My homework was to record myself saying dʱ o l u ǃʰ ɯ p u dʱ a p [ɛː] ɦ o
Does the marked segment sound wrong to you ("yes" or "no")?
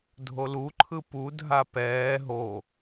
no